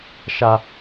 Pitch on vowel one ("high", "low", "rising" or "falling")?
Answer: high